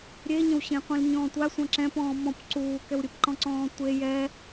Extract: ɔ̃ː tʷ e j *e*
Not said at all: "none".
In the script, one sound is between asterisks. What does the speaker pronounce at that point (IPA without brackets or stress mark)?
ɛ